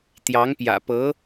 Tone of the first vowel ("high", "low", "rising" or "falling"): rising